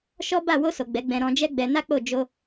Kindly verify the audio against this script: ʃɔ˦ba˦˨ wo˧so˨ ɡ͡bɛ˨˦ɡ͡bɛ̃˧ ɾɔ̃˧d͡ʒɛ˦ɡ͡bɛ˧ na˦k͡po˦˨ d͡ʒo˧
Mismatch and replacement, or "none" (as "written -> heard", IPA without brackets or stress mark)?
none